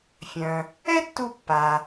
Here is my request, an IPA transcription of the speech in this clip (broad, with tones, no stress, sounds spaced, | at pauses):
fʲ œ̃˩ | ɛ˥ tː u˧ pː a˩